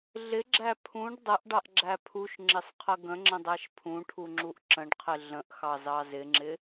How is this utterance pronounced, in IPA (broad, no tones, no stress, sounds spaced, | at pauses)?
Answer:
ɮ ɪ ɡ͡ǁ æ pʰ ũ ɖ dˤ ə ʔ ɖ ɑ ʔ ɡ͡ǁ æ pʰ u ʃ ŋ͡ǁ ɪ sˤ qʰ ə ɡ ə̃ ŋ͡ǁ ə̃ dˤ æ ʃ pʰ ũ ʈʰ u ŋ͡ǁ u ʔ ǁ ə̃ ɖ qʰ ɪ ɮ ə̃ ʔ x ɑ z ɑ z ɪ ŋ͡ǁ ɪ